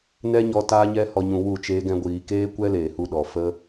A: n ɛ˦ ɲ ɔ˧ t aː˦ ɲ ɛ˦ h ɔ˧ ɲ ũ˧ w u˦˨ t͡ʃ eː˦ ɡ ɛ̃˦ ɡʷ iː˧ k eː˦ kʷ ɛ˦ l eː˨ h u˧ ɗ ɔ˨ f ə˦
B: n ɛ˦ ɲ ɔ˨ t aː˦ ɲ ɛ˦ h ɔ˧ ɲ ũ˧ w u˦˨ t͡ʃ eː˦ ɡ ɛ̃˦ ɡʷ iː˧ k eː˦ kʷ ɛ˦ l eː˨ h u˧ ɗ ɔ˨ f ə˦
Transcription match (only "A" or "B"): A